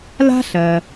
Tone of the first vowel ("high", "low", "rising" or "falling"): high